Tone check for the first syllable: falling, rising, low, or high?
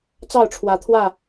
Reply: falling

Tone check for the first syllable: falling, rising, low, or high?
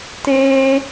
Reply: high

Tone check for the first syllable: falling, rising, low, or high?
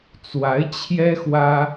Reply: rising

